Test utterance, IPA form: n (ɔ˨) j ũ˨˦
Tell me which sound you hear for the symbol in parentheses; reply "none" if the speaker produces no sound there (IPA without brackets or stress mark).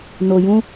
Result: o˨